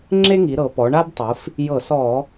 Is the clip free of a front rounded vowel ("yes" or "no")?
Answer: yes